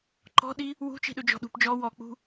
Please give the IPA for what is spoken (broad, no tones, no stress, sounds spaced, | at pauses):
ǃ ɔ̤ ɗ i | w ṳ t͡ʃ i̤ ɗ ɵ d͡ʒ ɔ̤ ɗ ṳ p d͡ʒ ɔ w ɔ k͡p ṳ